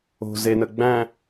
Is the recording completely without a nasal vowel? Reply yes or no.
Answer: no